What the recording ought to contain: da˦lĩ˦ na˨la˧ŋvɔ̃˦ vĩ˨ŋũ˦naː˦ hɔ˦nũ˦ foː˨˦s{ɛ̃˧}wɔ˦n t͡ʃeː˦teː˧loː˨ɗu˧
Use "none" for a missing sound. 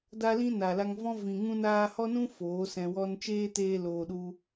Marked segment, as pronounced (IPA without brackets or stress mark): ɛ̃˧